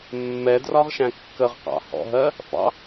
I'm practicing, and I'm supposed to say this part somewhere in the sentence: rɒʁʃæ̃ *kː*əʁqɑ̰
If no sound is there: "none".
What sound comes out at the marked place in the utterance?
kː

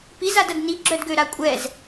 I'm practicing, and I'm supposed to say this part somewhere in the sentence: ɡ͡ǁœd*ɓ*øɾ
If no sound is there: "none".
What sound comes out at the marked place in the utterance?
ɡ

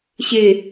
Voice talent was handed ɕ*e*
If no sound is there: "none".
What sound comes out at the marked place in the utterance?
e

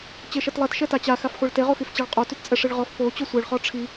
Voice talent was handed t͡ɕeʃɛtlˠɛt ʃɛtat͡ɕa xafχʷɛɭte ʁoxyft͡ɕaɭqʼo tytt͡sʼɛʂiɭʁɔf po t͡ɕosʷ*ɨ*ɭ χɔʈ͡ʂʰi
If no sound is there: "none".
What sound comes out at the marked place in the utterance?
e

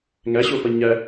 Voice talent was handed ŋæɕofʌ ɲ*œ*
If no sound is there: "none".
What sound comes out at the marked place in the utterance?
æ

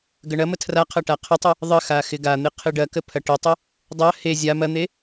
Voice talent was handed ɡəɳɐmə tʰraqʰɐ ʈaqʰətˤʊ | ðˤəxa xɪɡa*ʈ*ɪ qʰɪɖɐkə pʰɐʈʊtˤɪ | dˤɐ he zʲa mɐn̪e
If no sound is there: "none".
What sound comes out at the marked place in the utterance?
n̪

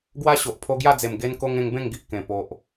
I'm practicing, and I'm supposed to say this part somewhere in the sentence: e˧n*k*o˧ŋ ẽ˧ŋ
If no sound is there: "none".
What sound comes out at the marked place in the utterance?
k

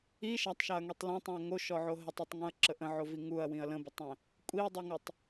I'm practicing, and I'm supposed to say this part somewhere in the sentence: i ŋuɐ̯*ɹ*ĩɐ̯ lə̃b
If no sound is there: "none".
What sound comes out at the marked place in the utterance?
w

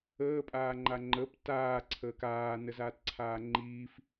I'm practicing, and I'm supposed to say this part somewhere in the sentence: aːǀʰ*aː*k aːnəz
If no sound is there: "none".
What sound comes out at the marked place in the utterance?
əː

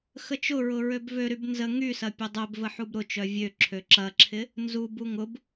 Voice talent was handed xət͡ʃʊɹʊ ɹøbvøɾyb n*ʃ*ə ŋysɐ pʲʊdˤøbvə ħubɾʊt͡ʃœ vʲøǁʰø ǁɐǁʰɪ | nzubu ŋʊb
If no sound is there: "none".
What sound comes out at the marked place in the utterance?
z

